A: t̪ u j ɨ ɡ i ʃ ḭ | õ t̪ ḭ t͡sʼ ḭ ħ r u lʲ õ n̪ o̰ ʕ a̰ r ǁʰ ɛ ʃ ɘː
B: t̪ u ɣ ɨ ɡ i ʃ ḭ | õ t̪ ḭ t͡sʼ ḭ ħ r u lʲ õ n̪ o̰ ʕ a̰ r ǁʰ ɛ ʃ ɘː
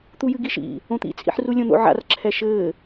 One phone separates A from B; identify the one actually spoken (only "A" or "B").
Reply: A